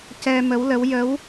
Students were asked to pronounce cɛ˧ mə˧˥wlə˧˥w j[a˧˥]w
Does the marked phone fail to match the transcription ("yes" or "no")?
yes